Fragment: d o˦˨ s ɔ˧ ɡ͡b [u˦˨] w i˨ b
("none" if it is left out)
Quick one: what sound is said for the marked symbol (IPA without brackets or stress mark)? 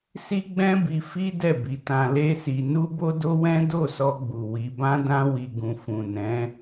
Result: u˨